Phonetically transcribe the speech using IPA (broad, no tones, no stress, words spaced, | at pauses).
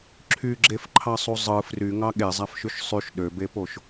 ǁʰyɡ͡ǁefǃʰɑsˤu zˤɯ fryŋɑ ɠezˤæfʃyʃ sˤyʃ ɗøbepoʃ